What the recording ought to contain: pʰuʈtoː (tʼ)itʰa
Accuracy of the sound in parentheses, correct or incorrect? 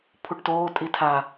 correct